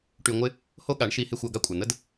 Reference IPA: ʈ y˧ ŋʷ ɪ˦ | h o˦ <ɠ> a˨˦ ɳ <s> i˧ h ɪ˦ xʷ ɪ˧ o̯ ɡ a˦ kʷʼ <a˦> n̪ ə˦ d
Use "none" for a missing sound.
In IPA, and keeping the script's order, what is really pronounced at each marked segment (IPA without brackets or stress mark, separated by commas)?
ɠ, ʃ, a˨